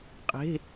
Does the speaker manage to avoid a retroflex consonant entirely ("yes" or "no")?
yes